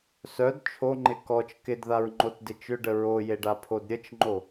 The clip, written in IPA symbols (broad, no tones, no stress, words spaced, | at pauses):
sœd t͡ʃʰoŋ͡ǃɪ kɔt͡ʃ kɪdðaɹŋ͡ǃotdɪ t͡ʃʏɖə ɹojeɖapʰod ɾʲət͡ʃŋ͡ǃo